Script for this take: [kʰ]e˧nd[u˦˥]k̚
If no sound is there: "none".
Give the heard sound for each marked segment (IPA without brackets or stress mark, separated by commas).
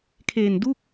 kʰ, u˥˩